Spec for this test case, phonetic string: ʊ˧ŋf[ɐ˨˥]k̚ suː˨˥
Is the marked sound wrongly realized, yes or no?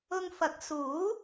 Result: no